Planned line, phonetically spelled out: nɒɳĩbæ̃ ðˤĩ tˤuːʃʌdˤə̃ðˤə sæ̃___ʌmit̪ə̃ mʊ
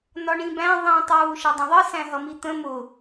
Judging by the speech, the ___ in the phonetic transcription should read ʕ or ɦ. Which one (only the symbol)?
ɦ